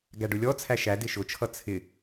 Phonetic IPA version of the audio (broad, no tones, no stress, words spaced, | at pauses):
ɡæɖʊlʲɔ t͡sʰæʃæ dɪʃʊt͡ʃʰʌ t͡sʰɪ